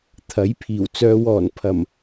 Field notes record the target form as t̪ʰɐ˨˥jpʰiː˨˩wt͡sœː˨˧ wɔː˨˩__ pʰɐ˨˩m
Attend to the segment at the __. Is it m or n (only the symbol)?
n